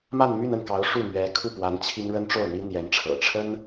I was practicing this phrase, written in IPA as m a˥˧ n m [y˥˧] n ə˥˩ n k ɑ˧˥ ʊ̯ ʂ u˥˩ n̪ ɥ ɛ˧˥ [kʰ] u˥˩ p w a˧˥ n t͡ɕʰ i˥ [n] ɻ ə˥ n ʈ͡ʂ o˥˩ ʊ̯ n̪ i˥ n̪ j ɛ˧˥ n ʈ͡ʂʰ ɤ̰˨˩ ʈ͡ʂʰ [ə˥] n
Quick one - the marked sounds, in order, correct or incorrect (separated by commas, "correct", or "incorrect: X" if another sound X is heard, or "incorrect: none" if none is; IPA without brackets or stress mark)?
correct, correct, incorrect: ŋ, correct